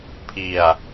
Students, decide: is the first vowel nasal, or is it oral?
oral